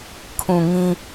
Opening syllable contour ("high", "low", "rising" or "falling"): low